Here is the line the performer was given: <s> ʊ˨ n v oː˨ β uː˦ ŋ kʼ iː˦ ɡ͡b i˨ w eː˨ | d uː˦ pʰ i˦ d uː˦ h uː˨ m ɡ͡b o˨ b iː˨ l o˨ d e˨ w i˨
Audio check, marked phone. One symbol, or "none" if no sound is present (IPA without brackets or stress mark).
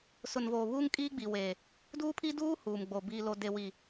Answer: s